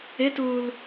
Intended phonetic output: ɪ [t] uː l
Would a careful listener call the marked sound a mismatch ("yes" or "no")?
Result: no